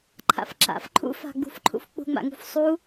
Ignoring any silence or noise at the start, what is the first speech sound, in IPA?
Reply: ǃʰ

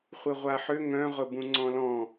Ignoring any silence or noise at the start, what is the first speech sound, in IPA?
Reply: χʷ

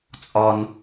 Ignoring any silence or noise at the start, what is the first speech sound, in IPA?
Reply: t͡sʼ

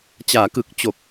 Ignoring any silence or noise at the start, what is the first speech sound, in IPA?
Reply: t͡ɕ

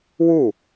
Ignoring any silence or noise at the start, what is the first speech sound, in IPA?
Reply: w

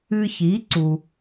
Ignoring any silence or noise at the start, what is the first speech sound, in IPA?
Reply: ɨː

